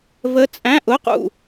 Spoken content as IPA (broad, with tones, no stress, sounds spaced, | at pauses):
v ə˧˥ t͡sʼ æ̃˧˥˧ ʔ ʊ˧˥˧ q ṵ˦˨